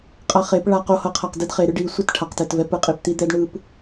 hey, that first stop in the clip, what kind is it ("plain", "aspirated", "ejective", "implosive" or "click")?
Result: ejective